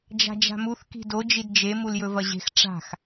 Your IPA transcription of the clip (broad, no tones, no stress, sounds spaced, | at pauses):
d͡ʒ a̤ d͡ʒ a̤ m u θ k i̤ d o d͡ʒ i d d͡ʒ e m u l j ɵ v ɐ ʑ e̤ x ʈ͡ʂ a̤ x